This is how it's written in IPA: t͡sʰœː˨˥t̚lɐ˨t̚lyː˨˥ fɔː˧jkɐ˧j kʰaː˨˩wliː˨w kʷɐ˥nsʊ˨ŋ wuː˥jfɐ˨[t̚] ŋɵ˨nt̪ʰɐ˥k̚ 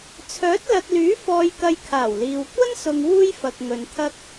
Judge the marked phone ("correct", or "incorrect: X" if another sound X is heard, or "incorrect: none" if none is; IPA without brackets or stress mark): incorrect: k̚